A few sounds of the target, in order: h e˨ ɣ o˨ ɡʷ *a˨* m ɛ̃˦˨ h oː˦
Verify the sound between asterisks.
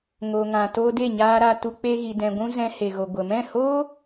incorrect: ə˨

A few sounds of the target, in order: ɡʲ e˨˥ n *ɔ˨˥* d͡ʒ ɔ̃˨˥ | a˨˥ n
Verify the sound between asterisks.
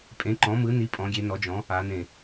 correct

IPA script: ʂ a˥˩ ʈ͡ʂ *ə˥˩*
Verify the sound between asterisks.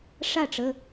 incorrect: ə˩˧˩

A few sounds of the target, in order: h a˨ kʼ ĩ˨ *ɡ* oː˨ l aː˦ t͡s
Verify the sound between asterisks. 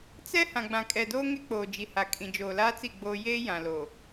incorrect: d͡ʒ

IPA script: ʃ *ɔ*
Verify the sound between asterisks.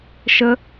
incorrect: ə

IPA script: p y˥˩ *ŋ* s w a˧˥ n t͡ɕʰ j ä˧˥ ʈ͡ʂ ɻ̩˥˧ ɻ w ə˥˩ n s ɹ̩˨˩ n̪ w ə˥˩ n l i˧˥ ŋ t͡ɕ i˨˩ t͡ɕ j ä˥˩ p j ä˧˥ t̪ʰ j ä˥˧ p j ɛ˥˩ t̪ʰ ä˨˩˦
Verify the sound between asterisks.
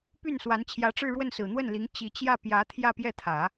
incorrect: n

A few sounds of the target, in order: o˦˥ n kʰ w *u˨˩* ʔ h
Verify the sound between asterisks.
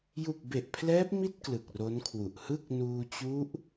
correct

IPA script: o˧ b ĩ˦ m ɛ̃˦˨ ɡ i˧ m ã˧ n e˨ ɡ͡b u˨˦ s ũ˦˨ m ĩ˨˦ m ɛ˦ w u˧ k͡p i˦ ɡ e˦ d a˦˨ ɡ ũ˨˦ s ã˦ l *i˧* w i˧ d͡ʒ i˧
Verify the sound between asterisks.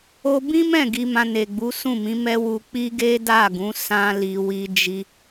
correct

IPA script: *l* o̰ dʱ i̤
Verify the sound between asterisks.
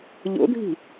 incorrect: ʎ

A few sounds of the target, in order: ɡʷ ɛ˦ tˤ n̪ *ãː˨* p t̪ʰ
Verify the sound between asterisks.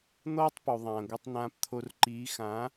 incorrect: ãː˦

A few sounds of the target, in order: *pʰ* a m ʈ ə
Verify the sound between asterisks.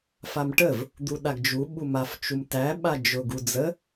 incorrect: f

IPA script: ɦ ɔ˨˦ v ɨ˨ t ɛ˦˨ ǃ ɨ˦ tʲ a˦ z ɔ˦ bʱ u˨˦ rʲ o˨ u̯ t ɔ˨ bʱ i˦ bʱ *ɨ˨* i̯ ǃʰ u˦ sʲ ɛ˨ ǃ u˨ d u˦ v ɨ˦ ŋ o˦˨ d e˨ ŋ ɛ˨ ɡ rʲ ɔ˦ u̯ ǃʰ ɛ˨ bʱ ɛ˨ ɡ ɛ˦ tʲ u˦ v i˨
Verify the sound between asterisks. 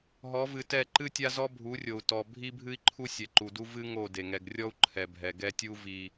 incorrect: ɨ˦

